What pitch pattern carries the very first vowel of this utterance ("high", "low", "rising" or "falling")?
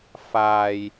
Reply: low